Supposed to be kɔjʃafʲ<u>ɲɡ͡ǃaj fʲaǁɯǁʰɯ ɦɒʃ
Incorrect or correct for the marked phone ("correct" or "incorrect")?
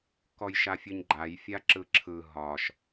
incorrect